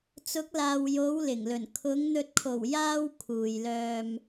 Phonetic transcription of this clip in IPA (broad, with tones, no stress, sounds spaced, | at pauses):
t͡s ʊ˨˥ k̚ l aː˨ w j o˨˧ w l ɪ˨˩ ŋ l ɵ˨˩ n kʰ ʊ˨˧ ŋ n̪ ɵ˨ t̚ kʰ o˨˩ w j aː˥ w kʰ uː˨ j l œː˧ m